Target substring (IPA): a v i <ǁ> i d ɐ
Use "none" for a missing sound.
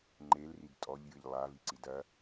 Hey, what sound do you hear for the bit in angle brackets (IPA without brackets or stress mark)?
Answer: ǀ